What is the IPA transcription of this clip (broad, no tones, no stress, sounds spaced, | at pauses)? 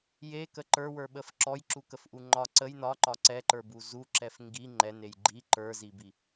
j e k ə ǃ ə˞ w ə˞ ɓ ə f ǁ ɔ j ǁ u k ə f ʔ u ŋ͡ǃ ɒ ǀ ə j n ɒ ǃ ɒ ǀ ɛ ǃ ə˞ b u z u ǁ ɛ f ŋ ɡ i ŋ͡ǃ ɛ n e j ɡ͡ǃ i ǃ ə˞ z i b i